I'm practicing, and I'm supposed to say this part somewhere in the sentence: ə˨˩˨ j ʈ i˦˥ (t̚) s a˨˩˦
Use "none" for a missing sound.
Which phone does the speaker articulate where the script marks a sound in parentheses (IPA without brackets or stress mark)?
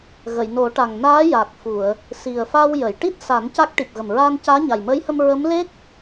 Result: t̚